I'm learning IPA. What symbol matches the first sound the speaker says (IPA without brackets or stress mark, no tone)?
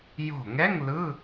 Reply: j